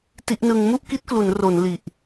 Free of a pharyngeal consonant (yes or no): yes